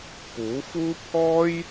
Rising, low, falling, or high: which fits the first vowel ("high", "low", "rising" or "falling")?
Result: rising